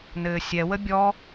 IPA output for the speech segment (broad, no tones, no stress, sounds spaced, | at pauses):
n ɘː sʲ ɛ w ə bʲ ɔ